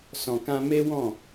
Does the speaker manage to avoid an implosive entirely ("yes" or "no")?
yes